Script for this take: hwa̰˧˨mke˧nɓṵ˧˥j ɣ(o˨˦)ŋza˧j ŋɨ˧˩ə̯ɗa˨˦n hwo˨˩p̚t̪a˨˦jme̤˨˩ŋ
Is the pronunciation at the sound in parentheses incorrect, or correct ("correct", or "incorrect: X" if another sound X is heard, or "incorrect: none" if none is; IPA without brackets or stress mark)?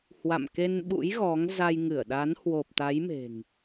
incorrect: ɔ˨˦